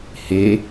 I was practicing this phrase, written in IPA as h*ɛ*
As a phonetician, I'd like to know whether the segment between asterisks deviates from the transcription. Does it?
yes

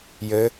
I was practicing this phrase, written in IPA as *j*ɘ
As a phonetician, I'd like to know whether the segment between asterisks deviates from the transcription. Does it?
no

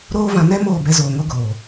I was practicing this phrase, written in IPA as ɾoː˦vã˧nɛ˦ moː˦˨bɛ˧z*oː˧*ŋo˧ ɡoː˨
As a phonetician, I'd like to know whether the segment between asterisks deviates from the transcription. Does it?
yes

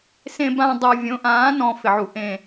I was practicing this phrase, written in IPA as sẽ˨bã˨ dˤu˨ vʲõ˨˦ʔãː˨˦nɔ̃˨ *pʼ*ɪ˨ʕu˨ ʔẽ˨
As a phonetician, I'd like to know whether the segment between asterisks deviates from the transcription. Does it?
yes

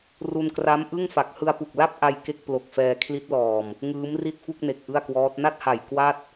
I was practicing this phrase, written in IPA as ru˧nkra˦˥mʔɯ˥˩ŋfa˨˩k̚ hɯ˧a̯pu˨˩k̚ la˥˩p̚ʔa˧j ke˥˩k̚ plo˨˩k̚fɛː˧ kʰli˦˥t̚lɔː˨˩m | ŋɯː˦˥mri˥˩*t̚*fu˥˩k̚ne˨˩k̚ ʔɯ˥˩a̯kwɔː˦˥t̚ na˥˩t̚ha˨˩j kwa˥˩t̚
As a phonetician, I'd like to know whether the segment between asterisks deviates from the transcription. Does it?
no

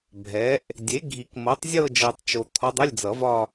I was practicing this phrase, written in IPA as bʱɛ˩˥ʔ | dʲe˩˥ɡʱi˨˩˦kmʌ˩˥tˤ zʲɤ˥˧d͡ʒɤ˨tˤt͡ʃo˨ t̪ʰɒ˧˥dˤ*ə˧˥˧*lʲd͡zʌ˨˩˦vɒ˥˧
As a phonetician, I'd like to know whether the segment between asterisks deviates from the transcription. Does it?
no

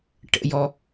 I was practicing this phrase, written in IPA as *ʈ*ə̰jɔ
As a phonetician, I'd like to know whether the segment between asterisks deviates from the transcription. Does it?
no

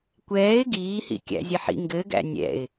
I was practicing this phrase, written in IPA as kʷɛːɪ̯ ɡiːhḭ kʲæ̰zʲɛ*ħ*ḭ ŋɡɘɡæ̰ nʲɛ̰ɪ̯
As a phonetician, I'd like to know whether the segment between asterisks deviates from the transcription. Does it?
no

